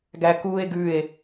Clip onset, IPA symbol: ɡ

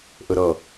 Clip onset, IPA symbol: ʔ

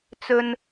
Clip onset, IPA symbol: t͡s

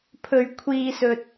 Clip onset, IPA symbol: pʰ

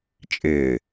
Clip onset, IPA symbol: t͡ʃʼ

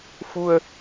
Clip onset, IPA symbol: f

